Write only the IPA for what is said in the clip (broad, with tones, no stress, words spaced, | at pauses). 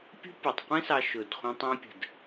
pʲṳ˦pʲu˨tˤqʷĩ˦sɑ˧ ʃʊ˨dχʷĩ˧tˤĩ˧pʲə̤˨d